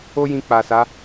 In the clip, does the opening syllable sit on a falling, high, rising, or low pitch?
high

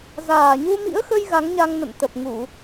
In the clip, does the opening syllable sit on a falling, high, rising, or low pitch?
low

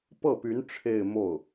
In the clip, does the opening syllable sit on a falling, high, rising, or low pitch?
falling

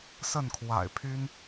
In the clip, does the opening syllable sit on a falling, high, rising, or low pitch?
falling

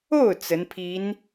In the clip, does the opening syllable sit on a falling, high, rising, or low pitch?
falling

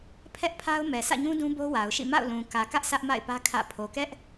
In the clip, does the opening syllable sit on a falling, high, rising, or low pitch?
high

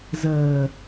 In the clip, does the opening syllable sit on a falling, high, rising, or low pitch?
low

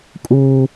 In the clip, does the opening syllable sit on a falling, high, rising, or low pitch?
high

